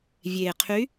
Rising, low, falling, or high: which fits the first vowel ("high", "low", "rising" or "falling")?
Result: low